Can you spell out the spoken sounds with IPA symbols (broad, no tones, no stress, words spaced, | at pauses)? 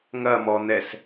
ŋɐmɔn̪ɛs